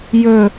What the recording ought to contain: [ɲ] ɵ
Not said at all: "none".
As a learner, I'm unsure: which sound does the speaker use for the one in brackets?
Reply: j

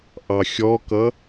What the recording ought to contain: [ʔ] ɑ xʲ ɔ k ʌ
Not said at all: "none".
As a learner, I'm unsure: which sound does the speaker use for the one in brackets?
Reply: ʔ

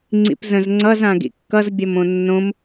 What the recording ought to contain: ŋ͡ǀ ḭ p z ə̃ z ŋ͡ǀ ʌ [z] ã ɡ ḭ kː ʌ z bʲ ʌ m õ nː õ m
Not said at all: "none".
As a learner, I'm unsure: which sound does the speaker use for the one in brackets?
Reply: z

